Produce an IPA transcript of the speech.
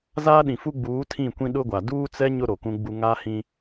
z aː˦ ɗ ĩ˨ f u˦ ɡ͡b uː˨˦ tʰ ĩ˦˨ kʷ ĩ˦ ɗ ʊ˦ ɡʷ a˨ d uː˦ t͡s ɛ˦ ɲ ʊ˦ ɾ o˨ k ũ˦ ɡ͡b u˦ ŋ a˦ h ĩ˦

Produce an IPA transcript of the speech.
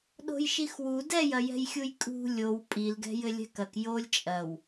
ɗ o̤ j ʃ i x w u d ɛ j ɐ j ɛ̤ j xʲ u j kʼ ṳ lʲ o w pʼ i l ɡ ɛ̤ j ɘ lʲ ɛ̤ k ɐ k j o lʲ t͡ʃʼ ɐ w

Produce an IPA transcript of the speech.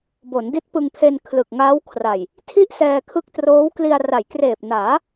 b o˩˦ n d i˦˥ t̚ p ɯ˧ ŋ pʰ e˧ n kʰ l ɯ˨˩ k̚ ŋ aː˦˥ w kʰ r a˨˩ j | tʰ i˥˩ ʔ s ɛː˧ kʰ ɯ˦˥ k̚ t r oː˦˥ w k l i˧ a̯ r a˩˦ j k r eː˨˩ p̚ n aː˩˦

